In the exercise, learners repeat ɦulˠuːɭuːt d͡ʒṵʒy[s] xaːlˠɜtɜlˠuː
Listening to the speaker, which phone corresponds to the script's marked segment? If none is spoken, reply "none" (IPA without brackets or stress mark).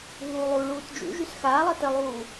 s